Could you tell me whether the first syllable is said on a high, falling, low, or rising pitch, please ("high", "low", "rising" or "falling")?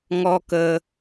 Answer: high